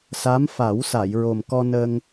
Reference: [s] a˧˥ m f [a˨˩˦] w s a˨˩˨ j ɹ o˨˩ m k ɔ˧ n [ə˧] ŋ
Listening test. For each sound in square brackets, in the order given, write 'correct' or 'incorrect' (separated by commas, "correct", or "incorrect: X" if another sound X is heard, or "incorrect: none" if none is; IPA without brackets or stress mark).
correct, correct, correct